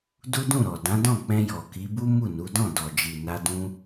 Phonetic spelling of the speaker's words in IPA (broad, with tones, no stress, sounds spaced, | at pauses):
d u˦ d ũ˦˨ ɾ ɔ˨ d ã˨˦ d ɔ̃˦˨ k͡p ɛ̃˧ j ɔ˨ k i˨˦ b u˦ m u˦˨ n u˨˦ d ɔ̃˦˨ d ɔ˨ d͡ʒ i˨ n a˧ d ũ˧